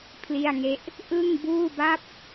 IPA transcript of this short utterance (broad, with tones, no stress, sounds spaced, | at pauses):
pʰ l i˥˩ a̯ ŋ e˥˩ ʔ | ʔ ɯ˥˩ ŋ b uː˥˩ b a˥˩ p̚